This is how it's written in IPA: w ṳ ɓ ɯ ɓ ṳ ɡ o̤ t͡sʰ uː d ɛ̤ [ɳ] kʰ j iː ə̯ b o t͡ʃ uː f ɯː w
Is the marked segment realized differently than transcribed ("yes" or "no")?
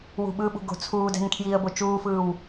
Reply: yes